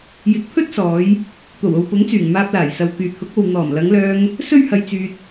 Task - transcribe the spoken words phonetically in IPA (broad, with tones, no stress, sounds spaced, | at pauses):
j ɪ˨˥ k̚ pʰ ɵ˥ t̚ s ɔː˨˧ j | t̪ o˨˩ w o˨ w p ʊ˨˥ ŋ t͡s yː˨˩ ŋ m aː˧ p̚ l aː˨˩ j s ɐ˨ w k yː˨ t̪ʰ ʊ˨˥ k̚ o˨ w n̪ ɔː˨˩ m l ɐ˨˧ ŋ l œː˧ ŋ | s ɵ˥ ɥ h ɐ˧ j t͡s yː˧ t̚